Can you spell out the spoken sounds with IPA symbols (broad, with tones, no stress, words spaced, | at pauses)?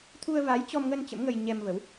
t̪ʰu˧ə̯va˨˦jt͡ɕɔ˧mŋə˧n t͡ɕə̰˧˥mŋə˧jɲɛ˧mvə˨˦w